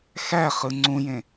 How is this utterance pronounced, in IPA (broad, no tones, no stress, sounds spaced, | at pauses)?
x æ χ ɯ ŋ͡ǀ ũ j ẽ